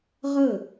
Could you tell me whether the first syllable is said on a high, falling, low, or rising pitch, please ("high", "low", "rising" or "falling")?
falling